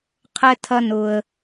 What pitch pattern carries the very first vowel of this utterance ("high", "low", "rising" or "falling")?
high